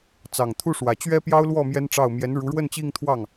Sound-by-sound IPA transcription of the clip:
t͡s ɑ˨˩ ŋ t̪ʰ u˥˩ ʂ w ä˨˩ t͡ɕ ɥ ɛ˥ p j ɑ˥ ʊ̯ l w ɔ˥˩ m j ɛ˥ n ʈ͡ʂ ɑ˥˩ ʊ̯ m j ɛ˧˥ n ɻ u˧˥ ɻ w ə˥˧ n t͡ɕ i˥˧ ŋ t̪ʰ w ɑ˥˩ ŋ

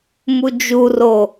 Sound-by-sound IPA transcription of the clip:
m u d͡ʒ u r o

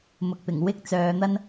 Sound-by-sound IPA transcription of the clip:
m ʊ˨ k̚ p ɪ˨˩ ŋ w ɪ˥ k̚ t͡s œː˨˧ n̪ ɐ˥ n

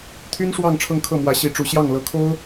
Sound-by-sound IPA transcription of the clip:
t̪ʰ y˥ n ʂ w ɑ˥˧ ŋ ʈ͡ʂʰ ɤ˥˧ ŋ kʰ ɤ˥˩ m w ä˧˥ ɕ i˧˥ ʈ͡ʂ u˧˥ ɕ j ɑ˥˩ ŋ l ɤ˧˥ kʰ o˥ ʊ̯

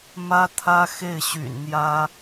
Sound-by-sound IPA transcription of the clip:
m ä˥ t̪ʰ ä˥ x e˥˩ ɪ̯ ɕ y̰˨˩ n n̪ j ä˥

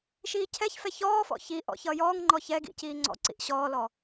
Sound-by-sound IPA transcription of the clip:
ʃ iː cʰ ɛ ç f ɛ ç ɔː f ɔ̰ ç i ʔ ɔ̰ ç ʌː j ɔː ŋ ŋ͡ǃ ɔ ç ɛ ɡ ḭ c iː ŋ͡ǀ ɔ̰ ǀ ḭ ʔ ɕ ɔː l ɔ

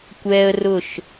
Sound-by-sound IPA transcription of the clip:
kʷ ɛː˦ ə̯ r ʊ˦˨ ʃ

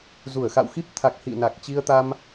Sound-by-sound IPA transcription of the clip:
z u˧˩ ə̯ x a̰˧˨ w x i˦˥ p̚ t̪ʰ a˨˩ k̚ h ḭ˧˨ n a˨˩ k̚ t͡ɕ i˧ ə̯ t̪ a˧ m

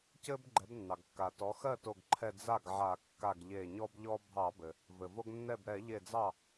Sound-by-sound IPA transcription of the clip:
c ɘ˦ b ɡ͡ǃ ɛ˩˥ b nː ɑ˩ ɡ kː a˩ t ɔ˩˥ x ɜ˥˩ t o˧˩ ɡ ǃʰ ɛ˧˩ d͡z a˥˩ ɡ ʕ a˧˩˧ kː a˧˩ ɡ ʎ e˧˩ ɲ ɔ˦ b ʎ ɔ˦ bʱ ɑ˧˩˧ b ɘ˩ | v ɘ˩ v o˦ ɡ nː ɛ˥˩ b ɾ ɛ˧˩˧ ʎ e˧˩ d͡z ɑ˥˩

